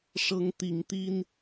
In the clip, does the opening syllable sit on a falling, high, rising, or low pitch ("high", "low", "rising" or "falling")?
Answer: rising